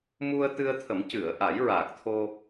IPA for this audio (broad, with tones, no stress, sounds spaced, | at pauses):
m u˧ ə̯ t̪ ɨ˧ ə̯ t̪ʰ ə˨˩˦ m c ɨ˨˩˨ ə̯ ʔ a˨˩˦ j ɹ aː˨˩ k̚ t̪ʰ o˧